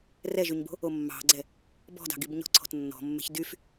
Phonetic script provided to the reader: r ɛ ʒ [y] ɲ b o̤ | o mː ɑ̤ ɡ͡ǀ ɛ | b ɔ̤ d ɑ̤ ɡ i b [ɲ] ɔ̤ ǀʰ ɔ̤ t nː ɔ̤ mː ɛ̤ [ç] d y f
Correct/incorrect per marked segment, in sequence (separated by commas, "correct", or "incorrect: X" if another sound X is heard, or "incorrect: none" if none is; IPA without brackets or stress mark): correct, correct, correct